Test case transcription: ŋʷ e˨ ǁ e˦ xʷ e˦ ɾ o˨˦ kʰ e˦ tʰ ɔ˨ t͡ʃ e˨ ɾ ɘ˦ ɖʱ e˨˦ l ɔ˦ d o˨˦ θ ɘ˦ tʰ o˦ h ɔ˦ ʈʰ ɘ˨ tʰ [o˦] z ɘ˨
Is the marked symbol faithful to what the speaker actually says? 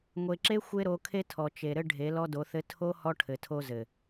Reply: yes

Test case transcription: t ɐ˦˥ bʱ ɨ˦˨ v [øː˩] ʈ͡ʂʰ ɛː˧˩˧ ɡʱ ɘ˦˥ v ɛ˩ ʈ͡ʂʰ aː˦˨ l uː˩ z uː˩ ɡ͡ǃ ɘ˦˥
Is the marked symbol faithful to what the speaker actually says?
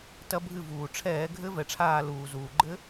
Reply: no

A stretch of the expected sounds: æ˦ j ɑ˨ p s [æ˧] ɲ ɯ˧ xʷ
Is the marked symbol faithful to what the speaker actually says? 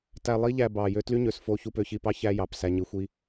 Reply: yes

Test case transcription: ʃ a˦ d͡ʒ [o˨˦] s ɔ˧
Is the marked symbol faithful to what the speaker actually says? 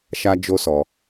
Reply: no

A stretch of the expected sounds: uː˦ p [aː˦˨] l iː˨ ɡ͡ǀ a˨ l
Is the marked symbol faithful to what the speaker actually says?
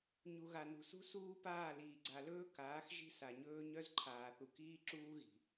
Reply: yes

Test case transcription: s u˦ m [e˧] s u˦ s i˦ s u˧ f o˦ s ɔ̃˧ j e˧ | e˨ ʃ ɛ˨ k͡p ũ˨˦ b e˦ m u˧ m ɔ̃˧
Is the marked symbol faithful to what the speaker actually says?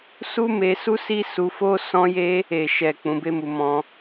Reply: yes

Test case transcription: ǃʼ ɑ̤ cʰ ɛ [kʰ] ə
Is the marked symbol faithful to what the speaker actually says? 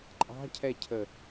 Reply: no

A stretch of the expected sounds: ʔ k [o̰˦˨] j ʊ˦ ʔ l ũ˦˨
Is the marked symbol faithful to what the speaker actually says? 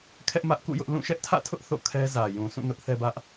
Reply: no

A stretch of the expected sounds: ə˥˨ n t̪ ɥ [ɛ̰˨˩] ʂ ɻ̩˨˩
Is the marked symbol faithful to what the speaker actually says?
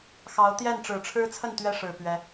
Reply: no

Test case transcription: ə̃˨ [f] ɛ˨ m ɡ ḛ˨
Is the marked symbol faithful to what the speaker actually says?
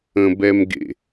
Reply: no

